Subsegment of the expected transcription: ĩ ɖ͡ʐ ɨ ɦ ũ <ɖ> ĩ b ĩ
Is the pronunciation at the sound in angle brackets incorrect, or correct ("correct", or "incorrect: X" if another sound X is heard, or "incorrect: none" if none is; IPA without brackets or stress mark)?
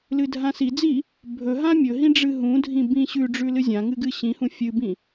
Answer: incorrect: dʱ